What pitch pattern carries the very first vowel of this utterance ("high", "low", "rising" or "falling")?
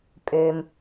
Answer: low